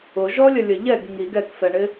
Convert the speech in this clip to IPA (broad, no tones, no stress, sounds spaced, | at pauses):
ʊ ʒ ɔ lʲ ə lʲ ə ʎ ɛ ɡ ŋ i ɡ ɛ k f ɛ ɳ ɪ